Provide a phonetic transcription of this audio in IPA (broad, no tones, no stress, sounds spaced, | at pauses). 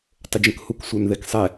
tˤ ə d͡ʒ ə̃ k h u k sʷ ə˞ n ð ɛ k sˤ ɛ